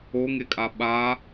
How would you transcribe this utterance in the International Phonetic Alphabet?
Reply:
o ŋ e kʼ a ɓ a

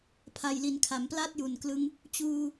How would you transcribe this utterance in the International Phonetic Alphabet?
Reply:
pʰ a˨˩ j l i˩˦ n kʰ a˩˦ m p l a˥˩ t̚ j u˨˩ n k l ɯ˦˥ ŋ | t͡ɕ uː˧

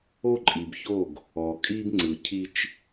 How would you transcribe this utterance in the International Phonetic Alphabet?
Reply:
o˦ ǃʼ i˨ b ç o˦˨ ɡ | ɔ˨ kʼ i˦ b ŋ͡ǀ ɯ˨ cʰ i˦ t͡ʃ

